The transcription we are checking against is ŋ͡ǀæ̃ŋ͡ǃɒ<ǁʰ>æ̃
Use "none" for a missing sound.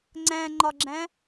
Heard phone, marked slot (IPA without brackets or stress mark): ɡ͡ǁ